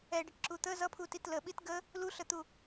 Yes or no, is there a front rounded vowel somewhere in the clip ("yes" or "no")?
no